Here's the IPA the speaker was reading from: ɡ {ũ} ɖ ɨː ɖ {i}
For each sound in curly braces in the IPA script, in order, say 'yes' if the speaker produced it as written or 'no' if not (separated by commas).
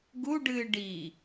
no, yes